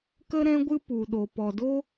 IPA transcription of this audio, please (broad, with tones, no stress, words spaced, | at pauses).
kə˦ɾɛ̃˦ɡʷɨ˦ pu˨ɗo˨ pɔ˨do˦